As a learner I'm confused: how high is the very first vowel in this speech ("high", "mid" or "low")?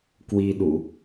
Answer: high